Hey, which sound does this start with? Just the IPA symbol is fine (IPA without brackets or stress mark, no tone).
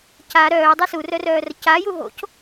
c